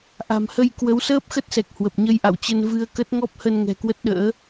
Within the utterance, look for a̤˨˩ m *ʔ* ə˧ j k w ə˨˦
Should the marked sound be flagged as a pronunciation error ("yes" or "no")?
yes